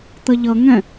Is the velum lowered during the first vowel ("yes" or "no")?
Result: no